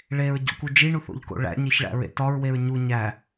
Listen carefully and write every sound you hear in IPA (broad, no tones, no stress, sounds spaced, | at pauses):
ɭ e ɹ ɟ o̰ k u d͡ʒ i ɳ u θ o̰ ʎ k o̰ ɭ æ̰ ɲ e ç ɭ æ̰ ɹ ḛ t ɒ ɹ w e ɹ ɲ u ɲ æ